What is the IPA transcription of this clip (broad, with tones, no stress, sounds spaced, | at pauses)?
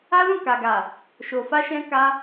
a˦ l ũ˦˨ k a˨ ɡ a˨ | ʃ o˨ f a˧ ʃ ɛ̃˧ k a˧